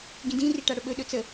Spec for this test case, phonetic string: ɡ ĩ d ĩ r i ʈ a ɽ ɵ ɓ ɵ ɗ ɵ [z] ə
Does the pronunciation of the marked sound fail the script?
yes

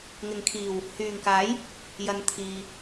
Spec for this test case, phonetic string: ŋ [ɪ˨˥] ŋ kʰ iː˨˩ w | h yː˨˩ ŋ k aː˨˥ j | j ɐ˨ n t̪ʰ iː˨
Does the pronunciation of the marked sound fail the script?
yes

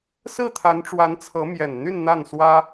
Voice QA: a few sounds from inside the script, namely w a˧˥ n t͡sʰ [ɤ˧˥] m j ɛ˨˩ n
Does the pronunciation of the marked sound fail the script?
no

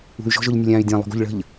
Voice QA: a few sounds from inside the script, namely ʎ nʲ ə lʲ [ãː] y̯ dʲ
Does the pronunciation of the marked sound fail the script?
no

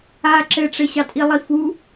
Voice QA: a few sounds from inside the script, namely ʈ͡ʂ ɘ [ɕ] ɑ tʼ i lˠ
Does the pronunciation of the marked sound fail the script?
no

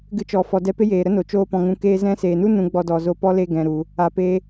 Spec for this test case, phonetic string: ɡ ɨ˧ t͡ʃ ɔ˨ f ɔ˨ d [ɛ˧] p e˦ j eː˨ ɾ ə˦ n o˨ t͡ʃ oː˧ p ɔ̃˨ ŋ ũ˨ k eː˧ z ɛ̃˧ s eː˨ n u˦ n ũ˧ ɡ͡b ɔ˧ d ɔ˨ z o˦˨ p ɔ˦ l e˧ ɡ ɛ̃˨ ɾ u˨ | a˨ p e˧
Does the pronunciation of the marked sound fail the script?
no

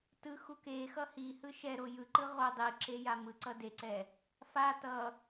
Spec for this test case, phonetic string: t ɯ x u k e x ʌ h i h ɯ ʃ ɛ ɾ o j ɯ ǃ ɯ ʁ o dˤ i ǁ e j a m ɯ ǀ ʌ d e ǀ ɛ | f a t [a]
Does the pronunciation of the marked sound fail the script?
yes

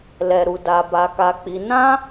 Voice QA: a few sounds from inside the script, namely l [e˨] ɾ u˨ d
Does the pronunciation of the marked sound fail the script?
yes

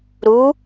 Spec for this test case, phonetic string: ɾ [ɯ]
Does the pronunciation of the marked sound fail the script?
yes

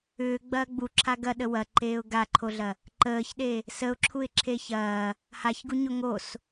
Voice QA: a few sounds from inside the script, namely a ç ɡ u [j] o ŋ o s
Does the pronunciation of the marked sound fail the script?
yes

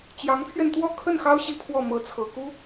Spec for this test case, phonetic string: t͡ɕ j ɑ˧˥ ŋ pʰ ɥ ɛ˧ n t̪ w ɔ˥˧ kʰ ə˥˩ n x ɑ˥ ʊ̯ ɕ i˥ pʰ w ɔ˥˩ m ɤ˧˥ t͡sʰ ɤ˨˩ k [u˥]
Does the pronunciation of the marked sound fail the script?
no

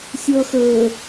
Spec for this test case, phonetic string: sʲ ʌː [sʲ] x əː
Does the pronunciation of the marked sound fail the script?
yes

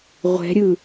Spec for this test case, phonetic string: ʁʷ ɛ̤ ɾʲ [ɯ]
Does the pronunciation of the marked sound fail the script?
no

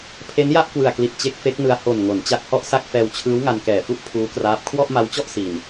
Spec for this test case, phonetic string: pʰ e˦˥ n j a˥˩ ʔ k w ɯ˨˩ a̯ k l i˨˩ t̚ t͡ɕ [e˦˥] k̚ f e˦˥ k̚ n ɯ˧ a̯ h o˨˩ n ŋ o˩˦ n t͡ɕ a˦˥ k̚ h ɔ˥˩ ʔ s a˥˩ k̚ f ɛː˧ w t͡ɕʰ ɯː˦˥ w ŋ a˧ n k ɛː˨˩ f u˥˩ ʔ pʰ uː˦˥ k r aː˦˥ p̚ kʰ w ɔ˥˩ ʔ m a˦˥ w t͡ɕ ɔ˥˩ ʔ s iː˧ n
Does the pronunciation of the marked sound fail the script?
no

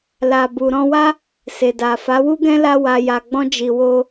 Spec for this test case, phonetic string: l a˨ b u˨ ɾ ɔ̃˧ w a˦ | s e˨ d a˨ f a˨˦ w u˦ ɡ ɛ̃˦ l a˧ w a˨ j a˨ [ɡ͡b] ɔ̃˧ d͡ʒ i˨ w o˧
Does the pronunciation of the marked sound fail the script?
no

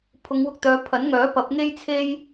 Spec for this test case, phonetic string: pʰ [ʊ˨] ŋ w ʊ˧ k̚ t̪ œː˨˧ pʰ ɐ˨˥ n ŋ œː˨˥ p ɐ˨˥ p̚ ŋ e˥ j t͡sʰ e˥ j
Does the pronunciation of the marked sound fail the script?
yes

